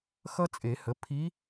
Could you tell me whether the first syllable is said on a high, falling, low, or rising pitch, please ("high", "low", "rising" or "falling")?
high